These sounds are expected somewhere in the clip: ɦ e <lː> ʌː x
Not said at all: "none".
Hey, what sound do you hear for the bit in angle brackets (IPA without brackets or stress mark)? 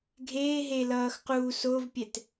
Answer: l